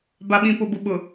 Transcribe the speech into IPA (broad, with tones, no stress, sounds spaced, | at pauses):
b a˨ ɓ ĩ˨ p ʊ˨ b ʊ˨ ɓ ʊ˨